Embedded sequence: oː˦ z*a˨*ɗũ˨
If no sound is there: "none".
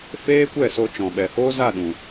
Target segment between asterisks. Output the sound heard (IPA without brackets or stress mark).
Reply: a˦˨